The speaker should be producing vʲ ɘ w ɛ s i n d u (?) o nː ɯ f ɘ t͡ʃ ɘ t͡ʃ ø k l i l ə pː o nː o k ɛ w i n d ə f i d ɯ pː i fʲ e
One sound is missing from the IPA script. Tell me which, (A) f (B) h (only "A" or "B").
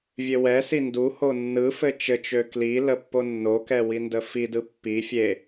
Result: B